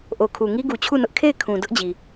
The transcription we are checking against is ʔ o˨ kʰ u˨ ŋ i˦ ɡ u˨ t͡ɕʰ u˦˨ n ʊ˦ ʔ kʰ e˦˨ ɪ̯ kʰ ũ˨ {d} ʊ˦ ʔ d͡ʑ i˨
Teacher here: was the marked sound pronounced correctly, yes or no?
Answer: yes